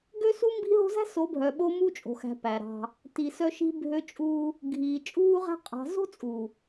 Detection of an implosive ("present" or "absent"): present